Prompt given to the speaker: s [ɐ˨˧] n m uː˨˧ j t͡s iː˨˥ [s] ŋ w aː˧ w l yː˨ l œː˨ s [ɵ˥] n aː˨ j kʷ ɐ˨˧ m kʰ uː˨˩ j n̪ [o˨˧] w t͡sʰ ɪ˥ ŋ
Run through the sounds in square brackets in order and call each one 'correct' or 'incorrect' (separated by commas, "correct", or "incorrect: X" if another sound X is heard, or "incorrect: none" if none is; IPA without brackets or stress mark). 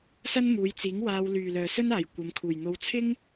incorrect: ɐ˥, incorrect: none, correct, correct